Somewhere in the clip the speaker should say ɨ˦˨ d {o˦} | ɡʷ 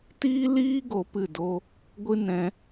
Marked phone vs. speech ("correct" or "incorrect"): correct